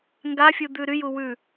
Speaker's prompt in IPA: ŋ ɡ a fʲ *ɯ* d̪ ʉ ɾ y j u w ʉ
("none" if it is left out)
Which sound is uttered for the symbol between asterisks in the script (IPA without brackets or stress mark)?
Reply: u